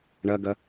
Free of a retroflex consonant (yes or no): no